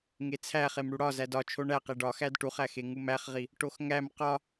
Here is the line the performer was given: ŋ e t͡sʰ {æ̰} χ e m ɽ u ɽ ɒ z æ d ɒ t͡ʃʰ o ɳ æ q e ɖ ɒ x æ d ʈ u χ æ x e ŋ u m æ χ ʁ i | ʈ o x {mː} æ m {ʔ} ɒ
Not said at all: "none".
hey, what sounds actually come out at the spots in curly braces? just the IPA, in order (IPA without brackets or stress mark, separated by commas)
æ, ŋ, q